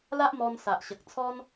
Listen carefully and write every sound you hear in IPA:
la˦ʔmɔ˧n sa˨ʔɕə˨k̚t͡sʰɔ˦n

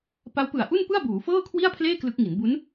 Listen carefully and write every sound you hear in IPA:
pa˦˥wpɯ˨˩a̯ʔu˥˩npɯ˥˩a̯ buː˩˦ fɤː˥˩kʰwi˥˩a̯pʰleː˥˩ klɯ˦˥k̚ŋi˩˦n bu˦˥n

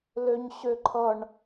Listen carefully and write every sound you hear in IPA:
løɲɕøǃʰʌɳ

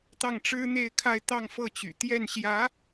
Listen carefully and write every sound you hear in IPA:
t̪ɑ˥˩ŋʈ͡ʂɻ̩˥n̪e˥˧ɪ̯kʰa˥˧ɪ̯ t̪ɑ˥˧ŋfɤ˥˩t͡ɕy̰˨˩ t̪jɛ˥˩nɕjä˧˥

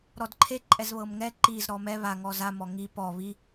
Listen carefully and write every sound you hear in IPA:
ɾɔdǃʰe ǃʼɛzβɤmŋɛ ǃiz ɾɔmɛ βa ŋɔza mɔŋi pɔ βi

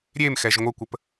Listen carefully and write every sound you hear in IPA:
ɾʲemxɛʒ ŋʷəkʷəp

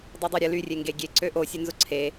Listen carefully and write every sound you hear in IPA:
dˤydˤøɾʲə lyrʲeŋɡe ɡʲeǀø ʔosʲønzʊ ǀʰe

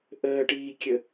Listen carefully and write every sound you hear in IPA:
ʔəːʈiːkʲə

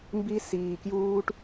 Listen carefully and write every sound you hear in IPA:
mbi˦siː˧kjuː˦ʈ

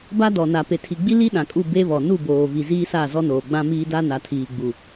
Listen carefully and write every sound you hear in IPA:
ba˦ dɔ˨na˨ pe˨tʰi˨ɡ͡bi˦ li˦ ɗã˨kʼu˦˨ be˦βɔ˨ nu˦˨boː˨ vi˨ ziː˦sa˦˨ zɔ˦noː˨ɡ͡bã˦ miː˦ da˦ na˨tʰiː˨ɡ͡bu˨

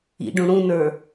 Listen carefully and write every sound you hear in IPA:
ḭɖũ ɽũnə˞

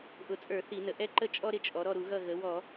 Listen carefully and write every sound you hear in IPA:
ʔʊ˨˩t͡sʼə˞˧˩˧ θi˧˩˧nə˨˩ ʔɛ˥ǃə˥ t͡ʃʼɔ˥ɾɪ˦˨t͡ʃʼɔ˩˧ ɾɔ˦˨ɾu˧˩˧ɣʌ˦˨ ɣə˩˧wɔ˧˩˧

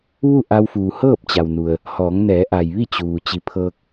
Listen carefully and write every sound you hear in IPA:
ʋu˥˨ ʔa˧wfuː˩ hɤː˥˨p̚t͡ɕa˩wnu˩ə̯ | hɔː˩˧ŋnɛː˩˧ʔa˩jʋi˥˨ t͡ɕuː˩ t͡ɕi˩˧pʰɤː˧k̚

